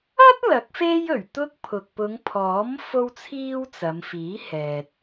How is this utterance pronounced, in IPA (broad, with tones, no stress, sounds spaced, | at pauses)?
ɐ˥ t̚ l ɐ˨˥ k̚ f e˥ j ɵ˨˩ ɥ t̪ ʊ˥ k̚ pʰ ʊ˨ k̚ p ʊ˨˧ ŋ pʰ ɔː˨˥ m f o˥ w t͡sʰ iː˥ w t͡s ɐ˨˧ m f iː˨˥ h ɛː˨ t̚